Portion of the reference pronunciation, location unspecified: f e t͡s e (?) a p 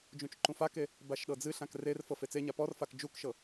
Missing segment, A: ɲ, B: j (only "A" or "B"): A